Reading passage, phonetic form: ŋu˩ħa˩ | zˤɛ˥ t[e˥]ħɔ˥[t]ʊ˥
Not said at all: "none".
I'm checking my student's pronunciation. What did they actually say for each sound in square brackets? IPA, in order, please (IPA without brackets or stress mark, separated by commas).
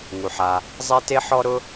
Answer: e˥, ɾ